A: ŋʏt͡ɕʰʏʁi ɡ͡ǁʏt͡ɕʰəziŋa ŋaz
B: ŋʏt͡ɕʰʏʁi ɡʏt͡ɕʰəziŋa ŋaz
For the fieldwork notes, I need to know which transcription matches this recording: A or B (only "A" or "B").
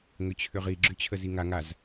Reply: A